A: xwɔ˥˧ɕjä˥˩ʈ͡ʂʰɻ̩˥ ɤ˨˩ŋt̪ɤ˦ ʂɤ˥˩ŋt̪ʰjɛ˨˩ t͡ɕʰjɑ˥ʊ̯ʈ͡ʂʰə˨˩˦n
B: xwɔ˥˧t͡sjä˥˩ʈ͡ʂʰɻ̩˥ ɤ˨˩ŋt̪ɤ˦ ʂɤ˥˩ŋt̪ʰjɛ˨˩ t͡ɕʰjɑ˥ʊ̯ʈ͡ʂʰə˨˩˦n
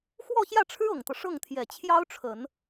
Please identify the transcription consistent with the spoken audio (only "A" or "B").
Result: A